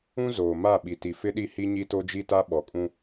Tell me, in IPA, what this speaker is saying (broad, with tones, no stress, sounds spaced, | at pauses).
ũ˦ z oː˨ m a˦˨ ɓ i˨ t i˨ f ɪ˦ ɗ i˦˨ h i˦ ɲ i˦ t o˦ d͡ʒ i˦ t a˦ ɓ ɔ˨ kʼ ũ˦